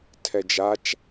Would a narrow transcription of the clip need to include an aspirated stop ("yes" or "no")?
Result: yes